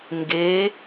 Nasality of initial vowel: oral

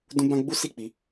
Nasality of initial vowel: nasal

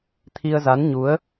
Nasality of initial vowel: oral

